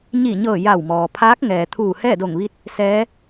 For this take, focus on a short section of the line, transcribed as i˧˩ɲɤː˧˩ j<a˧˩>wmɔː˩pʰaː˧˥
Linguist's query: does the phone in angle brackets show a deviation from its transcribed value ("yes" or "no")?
no